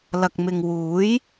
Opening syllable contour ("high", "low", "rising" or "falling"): low